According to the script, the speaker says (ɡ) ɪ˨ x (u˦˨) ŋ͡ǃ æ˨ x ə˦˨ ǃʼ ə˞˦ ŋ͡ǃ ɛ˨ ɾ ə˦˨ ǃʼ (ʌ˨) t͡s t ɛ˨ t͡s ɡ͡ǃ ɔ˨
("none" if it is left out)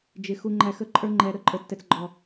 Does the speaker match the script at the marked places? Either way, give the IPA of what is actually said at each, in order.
d͡ʒ, u˨, ə˞˨

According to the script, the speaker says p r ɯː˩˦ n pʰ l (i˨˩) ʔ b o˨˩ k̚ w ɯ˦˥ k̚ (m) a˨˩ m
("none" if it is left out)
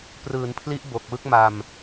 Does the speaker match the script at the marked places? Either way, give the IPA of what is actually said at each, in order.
i˦˥, m

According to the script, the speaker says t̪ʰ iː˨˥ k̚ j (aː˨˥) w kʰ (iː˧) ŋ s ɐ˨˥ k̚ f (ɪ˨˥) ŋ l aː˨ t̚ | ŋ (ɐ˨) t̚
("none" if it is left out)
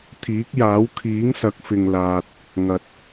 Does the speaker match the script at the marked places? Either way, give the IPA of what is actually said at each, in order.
aː˨˥, iː˨˥, ɪ˨, ɐ˨

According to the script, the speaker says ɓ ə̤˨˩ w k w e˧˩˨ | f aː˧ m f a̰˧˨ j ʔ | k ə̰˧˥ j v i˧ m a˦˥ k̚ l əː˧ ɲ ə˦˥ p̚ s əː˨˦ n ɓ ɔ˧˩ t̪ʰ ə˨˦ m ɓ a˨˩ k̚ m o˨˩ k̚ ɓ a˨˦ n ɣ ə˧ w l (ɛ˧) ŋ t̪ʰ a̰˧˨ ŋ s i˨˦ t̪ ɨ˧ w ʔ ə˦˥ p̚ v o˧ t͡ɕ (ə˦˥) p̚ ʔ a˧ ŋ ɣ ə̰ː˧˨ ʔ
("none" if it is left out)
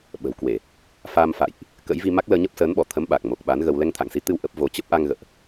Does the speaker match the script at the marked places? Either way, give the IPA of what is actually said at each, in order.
ɛ˧, ə˦˥

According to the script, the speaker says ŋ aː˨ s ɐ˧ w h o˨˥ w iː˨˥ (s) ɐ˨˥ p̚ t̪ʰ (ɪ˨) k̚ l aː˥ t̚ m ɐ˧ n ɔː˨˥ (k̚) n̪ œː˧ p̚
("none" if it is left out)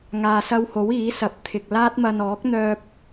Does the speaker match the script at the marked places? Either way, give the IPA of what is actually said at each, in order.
s, ɪ˨, k̚

